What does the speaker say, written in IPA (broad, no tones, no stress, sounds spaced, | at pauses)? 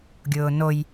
ɡʲ ʊː n o j